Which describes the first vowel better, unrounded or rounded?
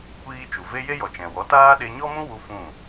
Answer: unrounded